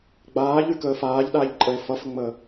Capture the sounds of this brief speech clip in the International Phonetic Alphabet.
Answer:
ɡ͡b aː ʎ y k əː f aː ʎ ɗ aː ʎ ǃʼ ə e̯ f ʌ f ə ŋ͡m əː

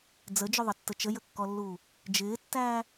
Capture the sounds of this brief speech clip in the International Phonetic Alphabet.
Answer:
d͡z ə d͡ʒ ʊ ðˤ ə tː ə t͡ʃ ə j ə kː ɔ lː uː | d͡ʒ ɪː tː æː

